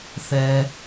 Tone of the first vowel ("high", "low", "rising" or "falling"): low